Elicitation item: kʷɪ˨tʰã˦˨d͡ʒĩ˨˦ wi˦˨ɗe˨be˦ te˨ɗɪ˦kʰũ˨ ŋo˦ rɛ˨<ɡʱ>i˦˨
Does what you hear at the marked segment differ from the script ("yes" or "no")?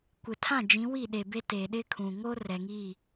yes